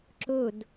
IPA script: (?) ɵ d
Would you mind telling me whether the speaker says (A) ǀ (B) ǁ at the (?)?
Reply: B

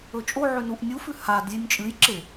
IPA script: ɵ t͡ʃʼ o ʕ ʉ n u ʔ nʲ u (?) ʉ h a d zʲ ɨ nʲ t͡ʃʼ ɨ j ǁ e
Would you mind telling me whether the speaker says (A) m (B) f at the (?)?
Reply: B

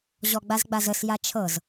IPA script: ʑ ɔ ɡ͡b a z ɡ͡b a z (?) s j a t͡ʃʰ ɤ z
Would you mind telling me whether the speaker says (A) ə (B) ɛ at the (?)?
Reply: A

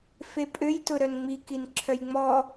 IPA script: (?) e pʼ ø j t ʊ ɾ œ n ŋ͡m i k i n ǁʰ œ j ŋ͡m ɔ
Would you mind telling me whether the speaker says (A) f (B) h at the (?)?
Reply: A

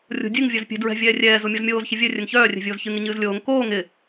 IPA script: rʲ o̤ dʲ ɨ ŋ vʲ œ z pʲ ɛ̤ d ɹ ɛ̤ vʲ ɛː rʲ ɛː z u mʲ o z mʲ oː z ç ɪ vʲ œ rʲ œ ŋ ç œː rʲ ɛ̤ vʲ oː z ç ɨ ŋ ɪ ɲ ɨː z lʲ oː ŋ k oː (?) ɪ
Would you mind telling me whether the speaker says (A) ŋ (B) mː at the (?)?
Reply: A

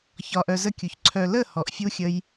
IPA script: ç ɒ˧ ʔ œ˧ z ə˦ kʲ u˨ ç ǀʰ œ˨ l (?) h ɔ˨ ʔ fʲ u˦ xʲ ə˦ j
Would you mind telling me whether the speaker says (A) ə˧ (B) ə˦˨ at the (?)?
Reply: B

